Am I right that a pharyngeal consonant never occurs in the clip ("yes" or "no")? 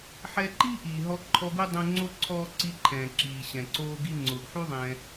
no